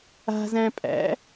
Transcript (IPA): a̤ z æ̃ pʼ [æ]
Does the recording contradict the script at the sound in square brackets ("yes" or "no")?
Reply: yes